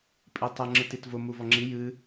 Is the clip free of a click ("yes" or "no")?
no